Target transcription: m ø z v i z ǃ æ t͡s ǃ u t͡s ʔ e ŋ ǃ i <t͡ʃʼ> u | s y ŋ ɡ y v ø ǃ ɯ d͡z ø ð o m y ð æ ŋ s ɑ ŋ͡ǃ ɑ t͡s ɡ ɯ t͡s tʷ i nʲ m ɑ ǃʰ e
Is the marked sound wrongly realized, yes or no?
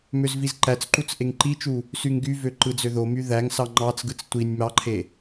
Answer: yes